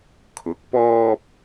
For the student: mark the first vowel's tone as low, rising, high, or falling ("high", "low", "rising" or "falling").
rising